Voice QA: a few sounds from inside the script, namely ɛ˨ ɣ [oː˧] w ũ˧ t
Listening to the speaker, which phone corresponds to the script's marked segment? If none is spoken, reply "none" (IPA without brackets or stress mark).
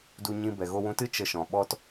o˧